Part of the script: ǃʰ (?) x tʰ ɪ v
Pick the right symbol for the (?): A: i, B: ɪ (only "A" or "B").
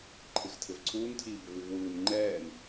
B